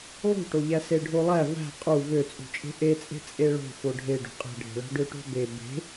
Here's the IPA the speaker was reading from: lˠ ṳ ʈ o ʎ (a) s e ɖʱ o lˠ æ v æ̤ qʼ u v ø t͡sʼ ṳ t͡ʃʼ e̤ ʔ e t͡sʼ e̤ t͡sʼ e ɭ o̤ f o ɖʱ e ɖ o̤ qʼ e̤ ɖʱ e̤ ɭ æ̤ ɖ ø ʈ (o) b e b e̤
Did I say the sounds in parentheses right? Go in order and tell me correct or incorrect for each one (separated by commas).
incorrect, incorrect